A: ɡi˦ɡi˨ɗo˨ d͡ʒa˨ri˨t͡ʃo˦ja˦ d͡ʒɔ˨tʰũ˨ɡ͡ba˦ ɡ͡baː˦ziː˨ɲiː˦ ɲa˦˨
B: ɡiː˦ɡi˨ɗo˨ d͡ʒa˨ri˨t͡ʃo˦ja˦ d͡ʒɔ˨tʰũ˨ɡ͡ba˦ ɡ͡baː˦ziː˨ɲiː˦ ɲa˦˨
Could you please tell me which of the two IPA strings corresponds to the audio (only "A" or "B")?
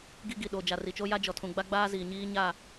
A